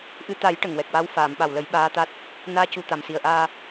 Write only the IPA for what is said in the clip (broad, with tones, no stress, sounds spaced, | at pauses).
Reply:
ʔ ɨ˧ t̪ a˨˩˦ j ʈ ə˨˩ ŋ w ɛ˨˩ k̚ w a˧˥ w f aː˨˩˨ m ɓ a˨˩ w l ə˨˩˦ j ɓ aː˧˥ t̪ a˦˥ t̚ | n aː˧˥ c u˨˩ t̪ a˨˩ m s i˨˩ ə̯ ʔ aː˧